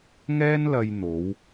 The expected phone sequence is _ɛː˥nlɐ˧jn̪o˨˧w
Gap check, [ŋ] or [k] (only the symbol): ŋ